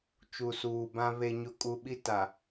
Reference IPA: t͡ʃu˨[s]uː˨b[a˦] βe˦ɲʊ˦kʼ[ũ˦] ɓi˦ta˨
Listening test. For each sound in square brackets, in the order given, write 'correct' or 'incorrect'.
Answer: correct, incorrect, incorrect

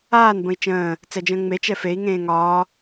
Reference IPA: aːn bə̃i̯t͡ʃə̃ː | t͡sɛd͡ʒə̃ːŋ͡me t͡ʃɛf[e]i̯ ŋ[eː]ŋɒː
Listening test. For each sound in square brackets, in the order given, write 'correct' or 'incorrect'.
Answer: correct, incorrect

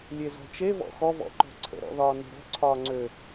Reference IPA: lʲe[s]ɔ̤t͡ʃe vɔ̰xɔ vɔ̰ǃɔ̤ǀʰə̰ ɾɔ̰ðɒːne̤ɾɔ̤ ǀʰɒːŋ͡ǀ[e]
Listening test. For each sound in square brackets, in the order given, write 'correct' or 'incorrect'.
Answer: incorrect, incorrect

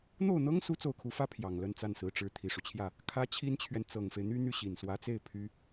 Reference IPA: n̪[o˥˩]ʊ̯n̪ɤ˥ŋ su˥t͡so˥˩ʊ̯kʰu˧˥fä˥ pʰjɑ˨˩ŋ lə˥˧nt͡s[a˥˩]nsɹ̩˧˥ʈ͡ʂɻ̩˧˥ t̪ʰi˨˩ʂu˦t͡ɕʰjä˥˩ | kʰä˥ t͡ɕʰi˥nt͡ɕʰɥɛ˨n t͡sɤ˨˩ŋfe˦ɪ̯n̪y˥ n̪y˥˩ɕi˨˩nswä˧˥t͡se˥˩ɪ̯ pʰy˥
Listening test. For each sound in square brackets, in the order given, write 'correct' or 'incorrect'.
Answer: correct, correct

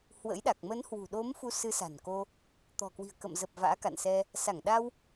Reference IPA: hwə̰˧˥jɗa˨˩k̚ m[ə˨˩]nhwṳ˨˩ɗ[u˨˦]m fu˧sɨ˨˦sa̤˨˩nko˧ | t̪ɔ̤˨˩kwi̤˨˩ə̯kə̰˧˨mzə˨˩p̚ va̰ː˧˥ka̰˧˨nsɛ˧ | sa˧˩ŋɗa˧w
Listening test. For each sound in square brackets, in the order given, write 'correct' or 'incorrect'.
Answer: incorrect, incorrect

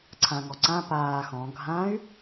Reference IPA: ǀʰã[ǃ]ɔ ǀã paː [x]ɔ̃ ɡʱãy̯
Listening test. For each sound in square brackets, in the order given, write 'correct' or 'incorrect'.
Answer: incorrect, correct

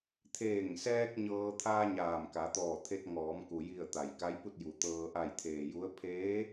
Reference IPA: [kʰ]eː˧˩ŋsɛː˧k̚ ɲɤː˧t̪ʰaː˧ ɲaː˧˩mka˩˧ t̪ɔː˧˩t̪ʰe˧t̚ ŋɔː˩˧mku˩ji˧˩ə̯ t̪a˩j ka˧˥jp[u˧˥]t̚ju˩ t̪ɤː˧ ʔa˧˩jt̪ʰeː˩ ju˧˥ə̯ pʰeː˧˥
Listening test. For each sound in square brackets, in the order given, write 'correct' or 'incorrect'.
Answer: incorrect, incorrect

